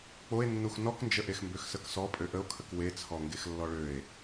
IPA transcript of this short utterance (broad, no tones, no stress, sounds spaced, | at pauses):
k͡p o e̯ nː u x n ɔ k n d͡ʒ ə ʔ e x m b ø x s ə k s ɔ pʼ ø ʔ ə o̯ kʰ ə k w e t͡sʰ ɔ ŋ ɡ e x lː ɔ ɭ ø e̯